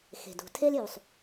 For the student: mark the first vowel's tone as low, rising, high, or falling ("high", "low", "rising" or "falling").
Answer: low